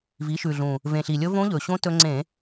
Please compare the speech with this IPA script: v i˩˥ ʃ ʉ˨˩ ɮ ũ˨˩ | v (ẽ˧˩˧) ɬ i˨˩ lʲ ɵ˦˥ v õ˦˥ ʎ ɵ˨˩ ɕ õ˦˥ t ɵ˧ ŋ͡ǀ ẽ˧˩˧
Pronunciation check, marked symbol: incorrect: ẽ˨˩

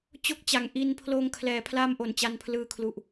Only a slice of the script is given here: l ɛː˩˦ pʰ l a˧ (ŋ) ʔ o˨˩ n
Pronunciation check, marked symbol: incorrect: m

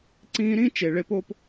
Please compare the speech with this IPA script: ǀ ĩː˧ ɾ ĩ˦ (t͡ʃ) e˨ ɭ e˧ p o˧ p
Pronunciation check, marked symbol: correct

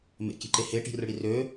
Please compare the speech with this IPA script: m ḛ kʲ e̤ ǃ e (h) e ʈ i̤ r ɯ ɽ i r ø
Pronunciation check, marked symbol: correct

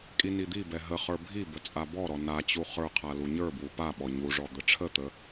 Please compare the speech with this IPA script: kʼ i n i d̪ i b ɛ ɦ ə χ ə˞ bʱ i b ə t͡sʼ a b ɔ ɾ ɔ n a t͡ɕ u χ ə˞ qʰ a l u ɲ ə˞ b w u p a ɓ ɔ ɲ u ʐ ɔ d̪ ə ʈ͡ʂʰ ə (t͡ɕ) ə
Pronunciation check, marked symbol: incorrect: t̪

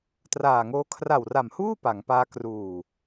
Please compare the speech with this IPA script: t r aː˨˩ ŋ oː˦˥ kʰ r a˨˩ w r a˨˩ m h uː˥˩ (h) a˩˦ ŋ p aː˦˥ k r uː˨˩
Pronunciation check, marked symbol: incorrect: p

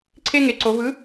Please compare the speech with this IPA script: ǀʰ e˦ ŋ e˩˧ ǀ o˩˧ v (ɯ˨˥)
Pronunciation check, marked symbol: correct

